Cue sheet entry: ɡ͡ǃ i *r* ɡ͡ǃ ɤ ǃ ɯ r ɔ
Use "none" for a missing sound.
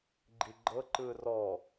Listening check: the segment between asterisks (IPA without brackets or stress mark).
none